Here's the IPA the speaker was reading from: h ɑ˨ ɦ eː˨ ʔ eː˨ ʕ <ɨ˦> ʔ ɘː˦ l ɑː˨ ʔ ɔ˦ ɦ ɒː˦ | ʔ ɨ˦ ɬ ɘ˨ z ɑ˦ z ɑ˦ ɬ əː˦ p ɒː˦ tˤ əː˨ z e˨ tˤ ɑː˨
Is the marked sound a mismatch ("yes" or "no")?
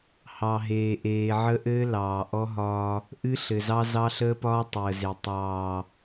yes